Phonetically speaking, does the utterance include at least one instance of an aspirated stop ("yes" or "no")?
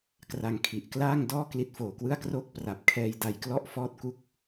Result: yes